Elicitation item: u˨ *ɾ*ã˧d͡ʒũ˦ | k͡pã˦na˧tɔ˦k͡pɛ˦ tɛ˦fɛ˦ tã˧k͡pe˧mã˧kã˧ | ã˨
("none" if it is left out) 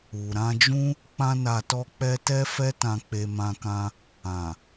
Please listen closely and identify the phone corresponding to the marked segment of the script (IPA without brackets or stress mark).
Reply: ɾ